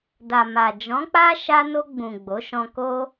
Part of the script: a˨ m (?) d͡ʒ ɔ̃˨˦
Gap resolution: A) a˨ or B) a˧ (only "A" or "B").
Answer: A